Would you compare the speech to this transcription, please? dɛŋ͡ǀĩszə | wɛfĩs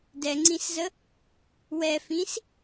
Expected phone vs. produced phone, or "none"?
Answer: none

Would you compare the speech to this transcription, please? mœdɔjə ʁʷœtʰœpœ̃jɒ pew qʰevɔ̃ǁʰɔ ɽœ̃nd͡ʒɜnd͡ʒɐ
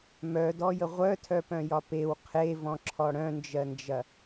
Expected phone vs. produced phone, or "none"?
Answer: none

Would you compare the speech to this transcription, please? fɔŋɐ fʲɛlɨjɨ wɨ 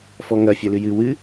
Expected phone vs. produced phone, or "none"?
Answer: none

